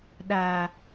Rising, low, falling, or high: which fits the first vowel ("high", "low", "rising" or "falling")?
low